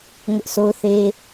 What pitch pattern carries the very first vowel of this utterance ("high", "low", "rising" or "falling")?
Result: high